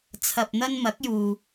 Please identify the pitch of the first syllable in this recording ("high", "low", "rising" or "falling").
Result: low